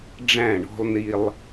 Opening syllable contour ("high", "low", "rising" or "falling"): falling